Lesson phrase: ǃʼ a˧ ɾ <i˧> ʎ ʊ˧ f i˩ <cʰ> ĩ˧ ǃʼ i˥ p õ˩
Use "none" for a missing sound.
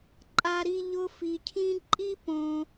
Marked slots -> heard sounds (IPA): i˧, cʰ

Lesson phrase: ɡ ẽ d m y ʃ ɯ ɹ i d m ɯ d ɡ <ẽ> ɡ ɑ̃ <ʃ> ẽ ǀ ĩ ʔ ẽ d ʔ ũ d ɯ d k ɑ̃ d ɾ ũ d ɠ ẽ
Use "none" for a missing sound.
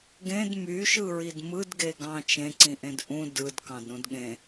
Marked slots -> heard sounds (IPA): e, t͡ʃ

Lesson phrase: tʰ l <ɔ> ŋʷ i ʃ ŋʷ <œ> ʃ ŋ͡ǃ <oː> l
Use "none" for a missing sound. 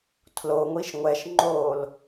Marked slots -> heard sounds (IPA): o, ɛ, oː

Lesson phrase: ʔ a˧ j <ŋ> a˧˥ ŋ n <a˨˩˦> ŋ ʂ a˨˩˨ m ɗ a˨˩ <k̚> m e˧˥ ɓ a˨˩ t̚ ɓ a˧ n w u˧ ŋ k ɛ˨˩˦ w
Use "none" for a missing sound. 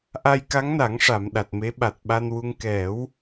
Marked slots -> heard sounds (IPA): k, a˨˩˦, t̚

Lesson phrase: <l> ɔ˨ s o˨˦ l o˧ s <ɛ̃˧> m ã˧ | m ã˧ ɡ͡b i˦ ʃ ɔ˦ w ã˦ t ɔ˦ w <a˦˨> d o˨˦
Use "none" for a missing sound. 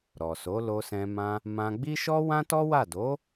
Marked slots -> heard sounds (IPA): ɾ, ɛ̃˧, a˦˨

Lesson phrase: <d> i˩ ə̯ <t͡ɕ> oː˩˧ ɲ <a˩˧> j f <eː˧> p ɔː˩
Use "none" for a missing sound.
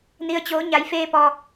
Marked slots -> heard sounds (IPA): n, t͡ɕ, a˩˧, eː˧

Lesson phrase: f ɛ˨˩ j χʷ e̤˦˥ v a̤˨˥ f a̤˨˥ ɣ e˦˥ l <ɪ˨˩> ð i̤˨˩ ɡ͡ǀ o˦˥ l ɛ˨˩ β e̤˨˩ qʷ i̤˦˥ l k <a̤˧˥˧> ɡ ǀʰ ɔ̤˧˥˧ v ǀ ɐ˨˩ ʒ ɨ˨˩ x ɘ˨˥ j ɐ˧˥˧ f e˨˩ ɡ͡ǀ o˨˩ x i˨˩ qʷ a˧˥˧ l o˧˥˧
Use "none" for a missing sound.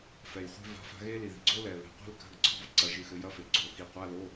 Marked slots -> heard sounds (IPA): i˨˩, a̤˧˥˧

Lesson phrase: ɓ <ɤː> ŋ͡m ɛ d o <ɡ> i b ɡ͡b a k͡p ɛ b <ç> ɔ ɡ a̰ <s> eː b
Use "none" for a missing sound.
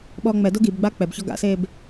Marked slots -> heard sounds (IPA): ɔː, ɡ, ç, s

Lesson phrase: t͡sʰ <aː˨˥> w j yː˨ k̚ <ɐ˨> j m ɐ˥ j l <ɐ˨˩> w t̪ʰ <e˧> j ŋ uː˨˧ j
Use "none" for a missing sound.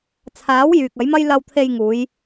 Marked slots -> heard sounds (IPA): aː˨˥, ɐ˨˥, ɐ˧, e˧

